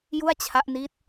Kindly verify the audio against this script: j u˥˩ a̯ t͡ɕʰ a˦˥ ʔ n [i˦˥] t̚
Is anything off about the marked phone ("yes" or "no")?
no